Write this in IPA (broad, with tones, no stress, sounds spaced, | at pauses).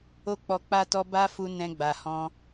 o˦ k͡p ɔ˧ k͡p a˦ t ɔ˦ b a˦ f u˧ n ɛ̃˧ ɡ͡b a˨ h ɔ̃˧